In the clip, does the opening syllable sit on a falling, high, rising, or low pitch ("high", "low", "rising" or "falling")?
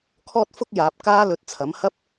high